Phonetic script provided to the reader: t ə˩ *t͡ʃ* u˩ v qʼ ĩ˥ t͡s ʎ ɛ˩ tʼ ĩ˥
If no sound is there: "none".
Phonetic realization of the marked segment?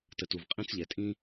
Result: t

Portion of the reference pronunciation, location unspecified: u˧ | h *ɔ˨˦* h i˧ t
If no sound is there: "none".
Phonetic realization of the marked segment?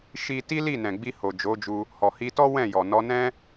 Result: ɔ˨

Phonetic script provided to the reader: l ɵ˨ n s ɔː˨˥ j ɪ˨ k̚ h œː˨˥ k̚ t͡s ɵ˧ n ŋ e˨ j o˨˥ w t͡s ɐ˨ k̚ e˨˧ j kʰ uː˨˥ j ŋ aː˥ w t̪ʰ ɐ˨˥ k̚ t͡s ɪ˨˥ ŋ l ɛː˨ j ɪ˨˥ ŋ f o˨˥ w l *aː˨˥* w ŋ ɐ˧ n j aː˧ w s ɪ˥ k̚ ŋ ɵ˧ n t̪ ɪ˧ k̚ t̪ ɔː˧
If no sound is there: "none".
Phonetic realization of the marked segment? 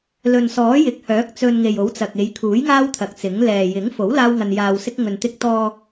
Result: aː˥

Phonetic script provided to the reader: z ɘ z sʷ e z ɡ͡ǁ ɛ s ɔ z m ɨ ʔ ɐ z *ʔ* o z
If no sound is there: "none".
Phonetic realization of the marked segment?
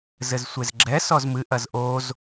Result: ʔ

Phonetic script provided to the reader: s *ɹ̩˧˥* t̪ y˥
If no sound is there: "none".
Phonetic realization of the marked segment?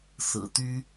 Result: ɹ̩˨˩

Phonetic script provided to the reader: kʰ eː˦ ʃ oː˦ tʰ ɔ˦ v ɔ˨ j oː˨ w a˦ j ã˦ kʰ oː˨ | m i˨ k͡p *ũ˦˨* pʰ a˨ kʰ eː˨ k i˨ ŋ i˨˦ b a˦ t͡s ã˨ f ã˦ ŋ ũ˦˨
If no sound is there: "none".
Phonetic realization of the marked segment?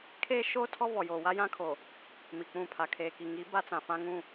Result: ũ˦˨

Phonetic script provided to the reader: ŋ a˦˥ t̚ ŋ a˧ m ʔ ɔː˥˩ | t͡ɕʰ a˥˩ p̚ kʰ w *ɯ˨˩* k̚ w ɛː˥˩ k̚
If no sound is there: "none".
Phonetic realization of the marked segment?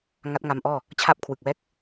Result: ɯ˨˩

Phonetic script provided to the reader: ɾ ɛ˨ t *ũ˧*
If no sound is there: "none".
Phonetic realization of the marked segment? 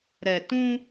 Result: ũ˧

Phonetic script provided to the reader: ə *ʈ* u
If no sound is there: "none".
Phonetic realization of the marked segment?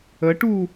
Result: ʈ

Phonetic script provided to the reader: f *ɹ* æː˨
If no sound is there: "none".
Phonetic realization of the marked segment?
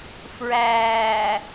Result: ɹ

